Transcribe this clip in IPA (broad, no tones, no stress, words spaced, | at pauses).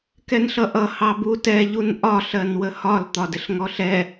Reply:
kɛnɬʌʔʌ hɑbutɛ ʎunʔɒ ɬɜnwəhɒl t̪ɒdɪɬŋɔɬɛ